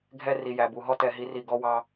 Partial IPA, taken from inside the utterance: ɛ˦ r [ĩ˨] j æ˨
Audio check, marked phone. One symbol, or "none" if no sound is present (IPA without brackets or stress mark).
i˨